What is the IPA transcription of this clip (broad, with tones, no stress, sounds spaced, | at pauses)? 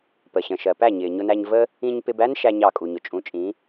p ə˩ ɕ ə̃˩ ʃ ɜ˩ p æ˥˩ ɲ ɪː˩ ɲ ʊ˧ n æ˧ ɲ v ə˥ | ĩ˧ ɲ p ɪ˧ b æ˥ n ʃ æ˥ ɲ ɑ˥˩ kʼ u˩ ɲ ʊ˩ t͡ʃʼ ũ˩˥ t͡ʃʼ ĩ˩˥